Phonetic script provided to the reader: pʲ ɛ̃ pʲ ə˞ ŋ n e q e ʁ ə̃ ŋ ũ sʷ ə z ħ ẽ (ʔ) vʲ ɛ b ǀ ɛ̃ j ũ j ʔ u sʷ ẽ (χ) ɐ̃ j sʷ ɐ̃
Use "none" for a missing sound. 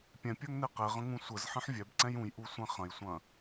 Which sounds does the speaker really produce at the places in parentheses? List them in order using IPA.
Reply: ħ, χ

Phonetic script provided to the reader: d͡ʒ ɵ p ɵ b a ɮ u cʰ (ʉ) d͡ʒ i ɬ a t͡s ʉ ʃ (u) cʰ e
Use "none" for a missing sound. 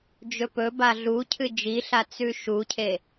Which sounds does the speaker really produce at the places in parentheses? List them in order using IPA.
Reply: ɨ, u

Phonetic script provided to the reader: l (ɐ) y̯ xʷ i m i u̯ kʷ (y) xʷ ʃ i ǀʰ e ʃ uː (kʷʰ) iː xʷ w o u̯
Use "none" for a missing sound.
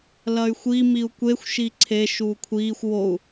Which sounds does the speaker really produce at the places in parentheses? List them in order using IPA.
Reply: ɐ, e, kʷʰ

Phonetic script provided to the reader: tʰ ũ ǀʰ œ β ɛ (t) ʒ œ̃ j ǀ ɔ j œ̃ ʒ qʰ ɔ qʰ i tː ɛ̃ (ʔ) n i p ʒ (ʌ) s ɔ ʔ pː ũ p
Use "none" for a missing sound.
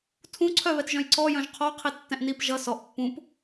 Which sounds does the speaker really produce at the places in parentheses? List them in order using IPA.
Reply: t, ʔ, ʌ

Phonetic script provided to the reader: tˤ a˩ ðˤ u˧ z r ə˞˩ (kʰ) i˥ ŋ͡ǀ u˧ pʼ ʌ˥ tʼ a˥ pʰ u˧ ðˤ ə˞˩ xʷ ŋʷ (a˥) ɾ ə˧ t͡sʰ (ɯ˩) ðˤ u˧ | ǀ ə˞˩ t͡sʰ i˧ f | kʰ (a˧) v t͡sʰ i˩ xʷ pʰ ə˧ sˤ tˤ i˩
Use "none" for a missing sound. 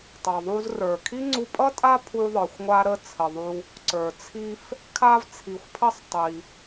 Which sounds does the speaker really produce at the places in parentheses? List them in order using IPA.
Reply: kʰ, a˧, ə˩, a˧

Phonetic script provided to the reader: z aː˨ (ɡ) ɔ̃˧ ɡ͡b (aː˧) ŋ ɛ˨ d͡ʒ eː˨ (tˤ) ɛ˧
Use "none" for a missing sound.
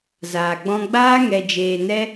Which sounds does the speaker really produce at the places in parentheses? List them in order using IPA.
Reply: ɡ͡b, aː˦, n

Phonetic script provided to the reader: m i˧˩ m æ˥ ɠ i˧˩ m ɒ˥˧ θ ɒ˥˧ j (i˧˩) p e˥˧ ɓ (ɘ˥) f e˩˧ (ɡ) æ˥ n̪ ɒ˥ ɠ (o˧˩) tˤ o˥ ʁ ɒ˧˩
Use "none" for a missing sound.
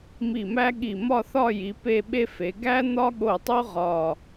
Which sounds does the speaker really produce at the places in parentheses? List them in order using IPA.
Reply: i˩˧, e˥, ɡ, o˧˩

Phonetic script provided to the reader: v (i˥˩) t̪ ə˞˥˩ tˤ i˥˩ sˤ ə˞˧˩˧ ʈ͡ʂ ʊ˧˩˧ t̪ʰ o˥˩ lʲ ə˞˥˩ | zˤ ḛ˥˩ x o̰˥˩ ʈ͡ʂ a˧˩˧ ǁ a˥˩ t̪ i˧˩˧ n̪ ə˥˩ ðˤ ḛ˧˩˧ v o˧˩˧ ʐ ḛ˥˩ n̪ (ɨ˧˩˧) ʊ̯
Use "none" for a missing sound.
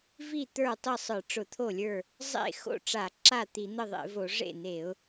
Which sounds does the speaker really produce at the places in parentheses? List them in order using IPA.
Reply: i˥˩, e˧˩˧

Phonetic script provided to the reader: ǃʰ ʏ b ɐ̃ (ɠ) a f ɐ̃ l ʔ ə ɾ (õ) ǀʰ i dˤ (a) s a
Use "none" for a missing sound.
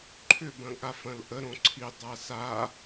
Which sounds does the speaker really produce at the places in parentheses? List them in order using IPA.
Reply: ɠ, õ, a

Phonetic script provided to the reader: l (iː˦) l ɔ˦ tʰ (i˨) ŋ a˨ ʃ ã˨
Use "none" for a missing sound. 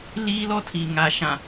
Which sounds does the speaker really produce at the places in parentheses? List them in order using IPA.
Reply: iː˦, i˨

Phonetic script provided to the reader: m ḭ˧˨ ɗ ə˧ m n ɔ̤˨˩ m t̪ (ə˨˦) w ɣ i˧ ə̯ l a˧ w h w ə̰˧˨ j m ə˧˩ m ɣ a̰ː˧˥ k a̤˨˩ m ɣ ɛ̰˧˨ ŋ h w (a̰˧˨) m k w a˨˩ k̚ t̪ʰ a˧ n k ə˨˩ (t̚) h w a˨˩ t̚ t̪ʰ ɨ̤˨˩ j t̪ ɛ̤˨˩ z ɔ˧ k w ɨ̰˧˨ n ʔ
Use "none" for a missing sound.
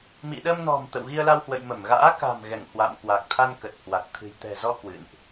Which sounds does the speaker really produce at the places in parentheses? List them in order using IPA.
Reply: ə̰˧˨, a̰˧˨, t̚

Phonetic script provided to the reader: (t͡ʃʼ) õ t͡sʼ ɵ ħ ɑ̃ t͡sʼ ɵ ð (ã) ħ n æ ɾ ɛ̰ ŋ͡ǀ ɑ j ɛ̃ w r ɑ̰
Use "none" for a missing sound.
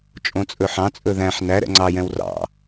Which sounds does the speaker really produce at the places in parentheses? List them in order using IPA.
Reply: t͡ʃʼ, æ̃

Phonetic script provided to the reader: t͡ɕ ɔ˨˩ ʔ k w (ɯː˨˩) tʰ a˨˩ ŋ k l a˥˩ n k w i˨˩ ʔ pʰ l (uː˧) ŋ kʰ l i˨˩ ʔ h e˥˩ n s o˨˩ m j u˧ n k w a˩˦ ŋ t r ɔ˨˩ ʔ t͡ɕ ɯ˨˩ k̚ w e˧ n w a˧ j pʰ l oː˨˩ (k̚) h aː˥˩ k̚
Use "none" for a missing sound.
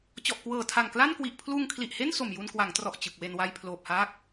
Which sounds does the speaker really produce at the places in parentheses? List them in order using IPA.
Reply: ɤː˨˩, uː˧, p̚

